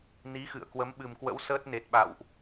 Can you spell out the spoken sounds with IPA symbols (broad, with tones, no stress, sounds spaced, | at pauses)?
n i˨˦ x ɨ̰˧˨ ə̯ k w ə˨˦ m ɓ ɨ˨˩ m k w ə̰˧˥ w s əː˦˥ t̚ n e˨˩ t̚ ɓ a̰˧˨ w ʔ